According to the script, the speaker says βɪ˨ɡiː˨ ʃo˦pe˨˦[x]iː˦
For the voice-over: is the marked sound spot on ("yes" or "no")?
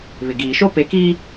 no